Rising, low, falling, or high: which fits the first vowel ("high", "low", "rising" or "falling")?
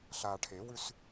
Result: low